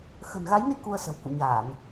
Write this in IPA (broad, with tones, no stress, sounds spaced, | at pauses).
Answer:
x ə̤˨˩ n ɣ a˨˦ j n i˧ k u˧ ə̯ s ə̤˨˩ w k ṵ˧˨ ɲ aː˧˩˨ n